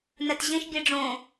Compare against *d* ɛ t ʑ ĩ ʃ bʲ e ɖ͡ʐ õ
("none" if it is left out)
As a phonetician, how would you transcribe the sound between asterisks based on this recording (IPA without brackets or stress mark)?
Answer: n